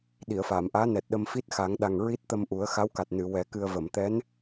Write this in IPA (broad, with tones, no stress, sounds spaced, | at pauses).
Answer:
ɗ i˨˩˨ ə̯ f aː˨˩˨ m ʔ aː˧˥ n ɛ˨˩ t̚ ɗ ə˧ m f i˦˥ t̚ x a˨˩˦ ŋ ɗ a˨˩ ŋ ɹ i˦˥ t̚ t̪ ə˧ m ʔ u˨˩˦ ə̯ x a˧˥ w k a˨˩ t̚ n ɨ˨˩˨ w ɛ˨˩˦ k ɨ˧ ə̯ v ə˨˩˨ m t̪ ɛ˧˥ n